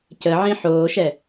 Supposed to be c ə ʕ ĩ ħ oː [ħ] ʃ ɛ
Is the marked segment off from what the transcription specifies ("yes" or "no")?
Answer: yes